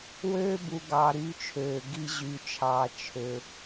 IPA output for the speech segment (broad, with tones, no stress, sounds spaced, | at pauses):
w øː˦ b u˨ ɡ ɑ˨ ɾ yː˦ t͡ʃʰ øː˨ ɡ i˦ ʑ yː˨ t͡ʃʰ ɑː˨ t͡ʃʰ ø˨